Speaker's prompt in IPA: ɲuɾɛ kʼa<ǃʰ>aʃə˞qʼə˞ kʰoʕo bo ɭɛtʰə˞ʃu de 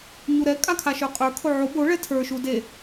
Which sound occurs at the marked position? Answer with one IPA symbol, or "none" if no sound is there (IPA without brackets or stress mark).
kʰ